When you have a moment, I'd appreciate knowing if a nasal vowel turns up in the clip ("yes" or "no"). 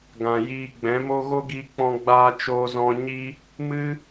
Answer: yes